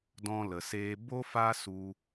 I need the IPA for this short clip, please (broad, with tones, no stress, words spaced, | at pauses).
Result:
dɔ̃˧lə˨seː˧ bo˦fa˦su˧